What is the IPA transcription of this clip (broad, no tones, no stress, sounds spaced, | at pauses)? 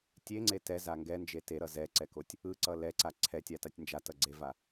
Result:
tʲ e ŋ͡ǀ e t ɛ z a ŋ ɡ ɛ n d͡ʒ e t e ɾ ʌ z ɛ ǀ ɛ k o tʲ | ɯ ǀ ʌ l ɛ ǀ a ǀʰ ɛ tʲ a t a tʲ n d͡ʒ a t ʌ ɡ͡ǀ e v a